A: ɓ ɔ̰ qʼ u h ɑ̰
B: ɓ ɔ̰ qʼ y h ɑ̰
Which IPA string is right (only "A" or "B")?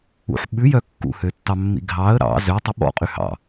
B